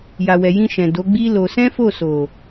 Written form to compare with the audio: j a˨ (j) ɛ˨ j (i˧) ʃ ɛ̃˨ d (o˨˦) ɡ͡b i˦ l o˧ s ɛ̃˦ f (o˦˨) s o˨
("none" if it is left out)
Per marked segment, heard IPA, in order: w, ĩ˧, o˨˦, o˦˨

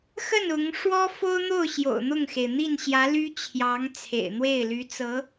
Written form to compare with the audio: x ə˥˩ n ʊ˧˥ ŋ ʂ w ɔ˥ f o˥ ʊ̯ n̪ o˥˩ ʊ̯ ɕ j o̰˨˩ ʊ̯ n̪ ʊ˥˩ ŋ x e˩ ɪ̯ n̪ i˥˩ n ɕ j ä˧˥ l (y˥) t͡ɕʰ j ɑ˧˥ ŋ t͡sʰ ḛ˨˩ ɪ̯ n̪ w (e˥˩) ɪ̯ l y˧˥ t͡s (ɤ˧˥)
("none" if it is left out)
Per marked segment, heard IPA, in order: y˥, e˥˩, ɤ˧˥

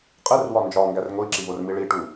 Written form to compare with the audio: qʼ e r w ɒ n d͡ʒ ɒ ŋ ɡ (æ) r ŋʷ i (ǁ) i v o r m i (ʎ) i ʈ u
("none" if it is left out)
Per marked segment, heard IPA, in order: æ, ǁ, ɭ

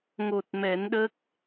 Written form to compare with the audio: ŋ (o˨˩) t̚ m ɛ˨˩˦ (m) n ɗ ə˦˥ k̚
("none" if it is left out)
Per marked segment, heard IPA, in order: o˨˩, none

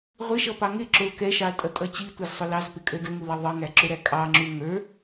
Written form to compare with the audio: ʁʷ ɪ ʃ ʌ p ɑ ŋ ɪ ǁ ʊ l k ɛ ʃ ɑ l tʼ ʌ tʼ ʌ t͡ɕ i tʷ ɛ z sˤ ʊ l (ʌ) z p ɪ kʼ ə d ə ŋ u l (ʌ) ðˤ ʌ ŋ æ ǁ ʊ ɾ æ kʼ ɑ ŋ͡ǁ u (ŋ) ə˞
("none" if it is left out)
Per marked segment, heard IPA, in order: ɑ, ʌ, ŋ

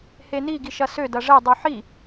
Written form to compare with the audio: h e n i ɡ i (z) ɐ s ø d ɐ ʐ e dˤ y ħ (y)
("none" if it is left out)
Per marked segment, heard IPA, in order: ʃ, i

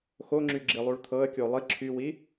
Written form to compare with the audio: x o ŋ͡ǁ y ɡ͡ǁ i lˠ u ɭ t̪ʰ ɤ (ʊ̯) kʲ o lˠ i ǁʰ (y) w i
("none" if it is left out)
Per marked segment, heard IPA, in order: ə̯, y

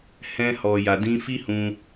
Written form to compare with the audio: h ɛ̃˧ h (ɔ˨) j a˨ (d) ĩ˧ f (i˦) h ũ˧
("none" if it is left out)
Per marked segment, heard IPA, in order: ɔ˨, d, i˦

